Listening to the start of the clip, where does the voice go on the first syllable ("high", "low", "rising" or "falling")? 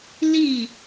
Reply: falling